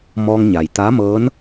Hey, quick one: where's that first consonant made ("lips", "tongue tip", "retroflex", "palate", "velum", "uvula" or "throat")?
lips